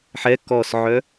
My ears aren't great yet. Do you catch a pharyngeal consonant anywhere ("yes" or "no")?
yes